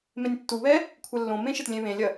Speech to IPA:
m ẽ nʲ tː u β ɛ | kʷʰ ɛ lː õ m ẽ ʃ ɘ t lʲ ẽ β ẽ lʲ ɐ

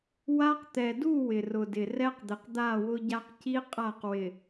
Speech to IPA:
w a˦ q t̪ ɛ˨ d u˦˨ w ɪ˨ r ʊ˨ d ɪ˨ r ɛ˦ q d̪ ɪ˨ q d̪ a˦˨ w ʊ˦ ɟ a˦ q c i˦ qʼ a˦˨ q w ɪ˨

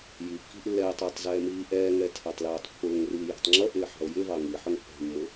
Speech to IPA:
j i kː i̤ ʔ lː ɛ e̯ tˤ ʊː tˤ z ɛː m iː ʔ ɛː ŋ ɛ tʰ æ tˤ l æː tˤ pː ʊː ŋ r iː j æ̤ tˤ ŋ͡ǁ ʌ ʔ ɪː ħ ɑ̤ o̯ j ɪ v ɑ ŋ i ħ ʊ ŋ pː æ̤ mː ʊ

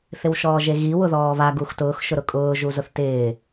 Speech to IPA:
θ ɪ w ʃ ɔː ʒ e ɣ i w ʊ ð ɔː β a ɡ u x t ʊː x ʃ ʊ ɾ ʊ kʼ ʊː ʒ u z ʊ θ t ɪː

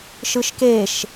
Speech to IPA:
ʃ ɯ ʃ k e ʃ

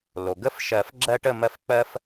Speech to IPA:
l o˩ ɡ ə˥˨ f ʃ ɜ˨˩˦ f ɡ͡ǁ ɜ˦ ʈ ə˥˨ m ɜ˥˨ f k͡p ɜ˦ f

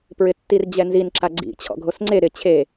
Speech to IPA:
p ɹ ɪ tː i r d͡ʑ ɛ n z i n ǁ a ɡ͡ǀ ḭ t͡ɕʰ ɔ̰ ɡʱ o s ŋ͡ǀ e ɾ ɪ t͡ɕʰ e

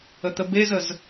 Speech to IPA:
ə t̪ ə b e z ə z

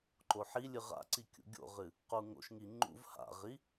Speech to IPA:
ǃ o ħ i lʲ ɨ ʁ a̰ ǀ i kʲ ṵ ɡʲ o̰ ʁ ɨ | q u ŋ o̰ ʃ ŋ i ŋ͡ǃ ṵ v h a̰ ʁ i

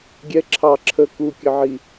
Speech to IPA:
ɡʲ ɛ ǁʰ ɑ ǁʰ ə k u kʲ ə ʕ i

